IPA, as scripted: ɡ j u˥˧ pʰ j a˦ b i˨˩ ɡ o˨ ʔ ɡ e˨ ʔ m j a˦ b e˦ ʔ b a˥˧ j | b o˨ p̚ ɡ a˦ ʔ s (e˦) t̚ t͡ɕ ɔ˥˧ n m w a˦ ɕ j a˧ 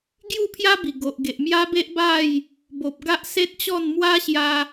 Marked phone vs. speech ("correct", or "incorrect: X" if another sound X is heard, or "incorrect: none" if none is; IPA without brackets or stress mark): correct